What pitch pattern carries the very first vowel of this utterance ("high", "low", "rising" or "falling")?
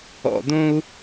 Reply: low